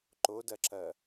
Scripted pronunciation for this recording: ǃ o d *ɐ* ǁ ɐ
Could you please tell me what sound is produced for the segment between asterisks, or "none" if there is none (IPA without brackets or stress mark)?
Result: ɐ